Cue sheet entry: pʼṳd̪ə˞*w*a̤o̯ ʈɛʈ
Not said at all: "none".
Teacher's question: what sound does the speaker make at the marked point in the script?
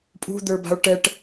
b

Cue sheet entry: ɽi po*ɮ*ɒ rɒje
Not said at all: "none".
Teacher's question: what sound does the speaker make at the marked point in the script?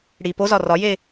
z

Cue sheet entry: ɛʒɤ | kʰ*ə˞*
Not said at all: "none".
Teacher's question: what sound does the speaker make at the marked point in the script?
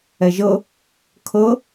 ɤ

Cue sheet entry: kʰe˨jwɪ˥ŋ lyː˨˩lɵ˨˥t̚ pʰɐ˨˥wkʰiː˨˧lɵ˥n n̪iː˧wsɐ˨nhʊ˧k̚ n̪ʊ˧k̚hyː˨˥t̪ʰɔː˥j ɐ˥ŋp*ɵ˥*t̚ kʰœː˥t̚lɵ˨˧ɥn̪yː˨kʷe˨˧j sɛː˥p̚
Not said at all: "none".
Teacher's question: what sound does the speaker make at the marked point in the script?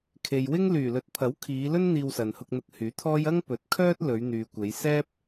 ɵ˨˥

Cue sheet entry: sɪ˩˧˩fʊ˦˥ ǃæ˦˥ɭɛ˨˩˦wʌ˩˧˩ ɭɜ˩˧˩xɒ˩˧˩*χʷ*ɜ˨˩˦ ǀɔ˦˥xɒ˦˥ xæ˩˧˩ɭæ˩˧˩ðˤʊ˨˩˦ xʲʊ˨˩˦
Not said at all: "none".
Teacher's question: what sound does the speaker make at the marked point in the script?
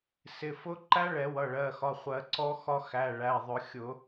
χʷ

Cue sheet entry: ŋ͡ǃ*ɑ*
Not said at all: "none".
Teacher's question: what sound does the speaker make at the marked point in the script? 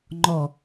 ɔ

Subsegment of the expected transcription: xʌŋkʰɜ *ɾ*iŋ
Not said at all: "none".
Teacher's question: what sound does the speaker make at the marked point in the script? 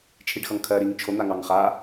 ɾ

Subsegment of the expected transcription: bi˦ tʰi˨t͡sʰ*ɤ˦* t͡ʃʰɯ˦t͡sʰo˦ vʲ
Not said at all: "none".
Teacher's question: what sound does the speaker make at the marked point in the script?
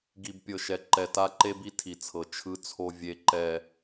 ɤ˨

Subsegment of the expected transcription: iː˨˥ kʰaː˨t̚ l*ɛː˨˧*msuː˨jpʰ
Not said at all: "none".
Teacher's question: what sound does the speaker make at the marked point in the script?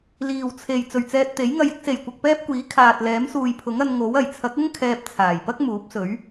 ɛː˨˥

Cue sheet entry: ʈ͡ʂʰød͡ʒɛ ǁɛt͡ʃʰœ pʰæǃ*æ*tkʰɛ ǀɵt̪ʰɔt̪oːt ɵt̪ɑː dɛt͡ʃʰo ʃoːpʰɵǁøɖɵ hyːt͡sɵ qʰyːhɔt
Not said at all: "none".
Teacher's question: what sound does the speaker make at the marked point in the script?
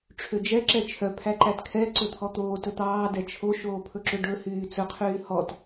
æ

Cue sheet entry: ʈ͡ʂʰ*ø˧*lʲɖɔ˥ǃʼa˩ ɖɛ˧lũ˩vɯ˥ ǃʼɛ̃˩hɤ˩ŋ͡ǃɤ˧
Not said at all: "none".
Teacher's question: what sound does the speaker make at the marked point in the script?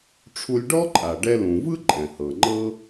u˧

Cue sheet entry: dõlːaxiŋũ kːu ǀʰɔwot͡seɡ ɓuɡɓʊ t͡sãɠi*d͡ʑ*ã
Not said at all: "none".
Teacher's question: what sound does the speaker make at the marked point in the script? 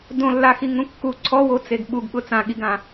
ɡ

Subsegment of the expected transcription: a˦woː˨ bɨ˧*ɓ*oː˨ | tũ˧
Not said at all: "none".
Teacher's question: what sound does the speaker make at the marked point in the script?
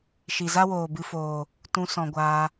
f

